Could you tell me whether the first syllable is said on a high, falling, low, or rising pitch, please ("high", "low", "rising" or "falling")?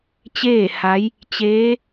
falling